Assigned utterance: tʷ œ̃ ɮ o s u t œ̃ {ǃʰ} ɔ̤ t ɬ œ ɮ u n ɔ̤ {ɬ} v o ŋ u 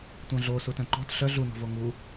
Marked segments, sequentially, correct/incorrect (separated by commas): incorrect, incorrect